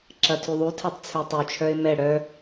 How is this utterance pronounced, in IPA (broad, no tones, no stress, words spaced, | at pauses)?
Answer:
ǁɐtʰyðˤutʰɛtˤ t͡sʰøtˤyt͡ʃʰœɪ̯ mɛ ɽœ